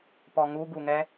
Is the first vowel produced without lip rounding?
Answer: no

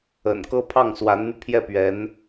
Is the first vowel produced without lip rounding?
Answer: yes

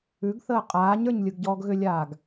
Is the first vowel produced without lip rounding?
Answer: no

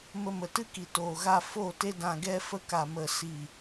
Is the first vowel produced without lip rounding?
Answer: yes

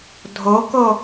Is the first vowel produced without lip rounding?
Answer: no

